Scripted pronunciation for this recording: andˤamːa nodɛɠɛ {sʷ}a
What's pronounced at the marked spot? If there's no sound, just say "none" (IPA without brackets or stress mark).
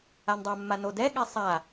sˤ